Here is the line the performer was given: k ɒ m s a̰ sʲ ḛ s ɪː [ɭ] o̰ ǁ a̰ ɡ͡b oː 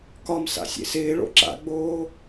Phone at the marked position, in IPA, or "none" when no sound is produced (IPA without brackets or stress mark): ɭ